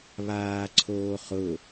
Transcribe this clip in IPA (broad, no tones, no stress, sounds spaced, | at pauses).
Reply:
β aː ǀʰ oː χ ʊ